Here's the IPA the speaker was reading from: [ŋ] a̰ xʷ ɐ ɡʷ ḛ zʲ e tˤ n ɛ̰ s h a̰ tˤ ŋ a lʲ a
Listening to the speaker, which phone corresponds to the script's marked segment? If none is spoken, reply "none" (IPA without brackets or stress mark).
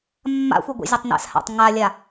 mː